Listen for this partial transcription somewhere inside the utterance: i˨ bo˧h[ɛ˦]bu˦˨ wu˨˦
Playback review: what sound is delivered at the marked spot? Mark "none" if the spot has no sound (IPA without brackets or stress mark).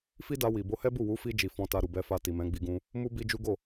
ɛ˦